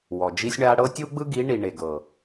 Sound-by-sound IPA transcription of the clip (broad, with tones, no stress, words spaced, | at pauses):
wɔ˨d͡ʒi˦sʲɳa˦ ɽɤ˦tʲu˦ɡ͡bɯ˦ ɡi˨˦ɳi˨ ɳe˨ɡɤ˨